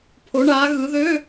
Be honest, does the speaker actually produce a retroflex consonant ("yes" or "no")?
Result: yes